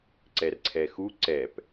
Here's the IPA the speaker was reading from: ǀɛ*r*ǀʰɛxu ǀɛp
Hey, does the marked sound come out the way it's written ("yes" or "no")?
yes